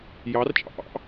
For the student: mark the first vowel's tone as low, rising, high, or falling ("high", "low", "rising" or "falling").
rising